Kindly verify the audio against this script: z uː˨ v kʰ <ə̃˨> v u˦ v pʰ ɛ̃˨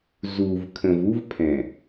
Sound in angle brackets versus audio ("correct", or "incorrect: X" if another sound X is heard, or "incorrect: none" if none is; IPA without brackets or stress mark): correct